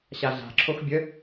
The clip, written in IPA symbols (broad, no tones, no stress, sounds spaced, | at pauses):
ɕ a ɮ a̤ ǁʰ o x bʲ ə